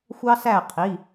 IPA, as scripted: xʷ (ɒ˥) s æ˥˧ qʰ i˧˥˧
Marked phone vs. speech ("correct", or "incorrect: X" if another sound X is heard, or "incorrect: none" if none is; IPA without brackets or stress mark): incorrect: ɑ˥